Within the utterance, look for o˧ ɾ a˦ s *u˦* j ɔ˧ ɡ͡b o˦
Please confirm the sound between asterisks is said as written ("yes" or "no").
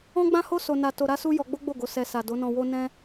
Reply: yes